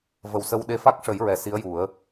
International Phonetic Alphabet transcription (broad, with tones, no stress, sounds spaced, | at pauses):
v ə˨˩ w s ə˧ w ɗ e˧˥ f a˦˥ k̚ ʂ ə˨˩˦ j ɹ ɛ˨˩ s i˧˥ ə̯ j u˨˩˦ ə̯